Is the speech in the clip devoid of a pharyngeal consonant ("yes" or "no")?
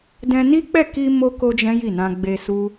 yes